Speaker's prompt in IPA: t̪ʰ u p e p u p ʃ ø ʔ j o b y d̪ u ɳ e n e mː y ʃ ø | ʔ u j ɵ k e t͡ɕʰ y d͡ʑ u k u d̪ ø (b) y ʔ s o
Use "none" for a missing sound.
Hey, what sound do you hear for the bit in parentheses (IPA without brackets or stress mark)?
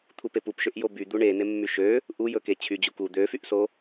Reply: f